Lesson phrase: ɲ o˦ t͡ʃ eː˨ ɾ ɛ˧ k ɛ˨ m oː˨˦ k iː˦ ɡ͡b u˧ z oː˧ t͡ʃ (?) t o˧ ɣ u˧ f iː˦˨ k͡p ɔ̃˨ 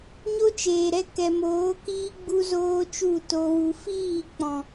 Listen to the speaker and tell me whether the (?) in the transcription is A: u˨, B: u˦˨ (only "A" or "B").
B